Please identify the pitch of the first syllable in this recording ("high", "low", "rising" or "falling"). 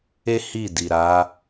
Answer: high